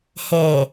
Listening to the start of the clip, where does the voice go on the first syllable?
low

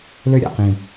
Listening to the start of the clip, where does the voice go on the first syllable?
high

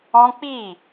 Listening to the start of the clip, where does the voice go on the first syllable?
high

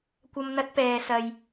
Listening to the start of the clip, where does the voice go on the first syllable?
high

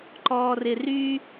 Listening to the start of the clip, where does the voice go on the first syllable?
high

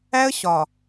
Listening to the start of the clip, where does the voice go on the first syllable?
high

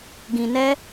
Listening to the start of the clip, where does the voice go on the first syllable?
low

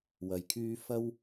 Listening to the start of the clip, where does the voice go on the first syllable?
low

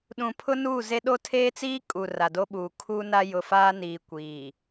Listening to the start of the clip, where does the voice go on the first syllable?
low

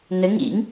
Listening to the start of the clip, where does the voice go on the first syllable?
rising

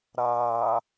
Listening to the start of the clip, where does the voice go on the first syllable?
low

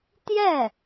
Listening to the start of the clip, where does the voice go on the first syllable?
falling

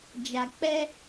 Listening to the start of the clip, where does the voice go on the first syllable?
low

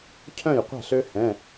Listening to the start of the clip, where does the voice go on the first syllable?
falling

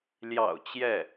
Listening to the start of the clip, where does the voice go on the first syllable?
low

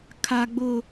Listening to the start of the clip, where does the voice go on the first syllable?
high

